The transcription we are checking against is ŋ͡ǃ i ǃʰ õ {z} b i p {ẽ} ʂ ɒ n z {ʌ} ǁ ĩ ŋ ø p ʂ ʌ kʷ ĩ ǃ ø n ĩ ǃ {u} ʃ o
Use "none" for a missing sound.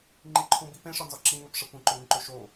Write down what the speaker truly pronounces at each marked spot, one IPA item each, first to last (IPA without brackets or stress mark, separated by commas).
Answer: none, ẽ, ɒ, ø